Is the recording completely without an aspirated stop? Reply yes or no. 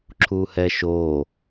no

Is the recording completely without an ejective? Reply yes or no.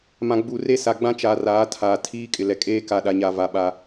no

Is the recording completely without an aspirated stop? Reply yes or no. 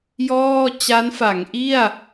yes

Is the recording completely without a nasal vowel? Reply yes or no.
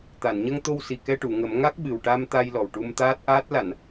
yes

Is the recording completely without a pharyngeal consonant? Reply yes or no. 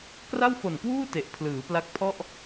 yes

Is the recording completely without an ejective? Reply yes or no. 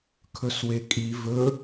no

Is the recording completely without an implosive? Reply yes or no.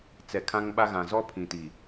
no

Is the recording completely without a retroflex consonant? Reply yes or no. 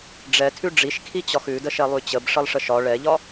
no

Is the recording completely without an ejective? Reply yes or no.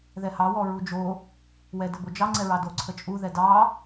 no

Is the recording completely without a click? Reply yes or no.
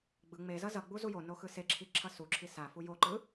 no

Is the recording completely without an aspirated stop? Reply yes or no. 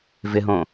yes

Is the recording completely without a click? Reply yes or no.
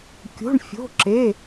no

